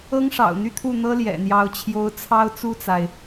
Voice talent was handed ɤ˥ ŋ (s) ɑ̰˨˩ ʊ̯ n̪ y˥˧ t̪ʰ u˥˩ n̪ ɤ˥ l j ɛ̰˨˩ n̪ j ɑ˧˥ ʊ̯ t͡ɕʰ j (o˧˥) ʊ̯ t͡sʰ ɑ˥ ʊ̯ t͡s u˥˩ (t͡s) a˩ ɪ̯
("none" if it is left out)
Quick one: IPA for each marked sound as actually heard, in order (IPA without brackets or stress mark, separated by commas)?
ʂ, o˧˥, t͡s